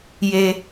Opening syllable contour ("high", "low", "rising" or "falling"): high